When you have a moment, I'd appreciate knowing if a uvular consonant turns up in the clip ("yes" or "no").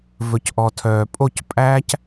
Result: no